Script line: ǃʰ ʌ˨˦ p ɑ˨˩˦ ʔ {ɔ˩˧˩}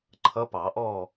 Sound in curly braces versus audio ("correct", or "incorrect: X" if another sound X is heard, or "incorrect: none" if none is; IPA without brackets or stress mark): incorrect: ɔ˥˨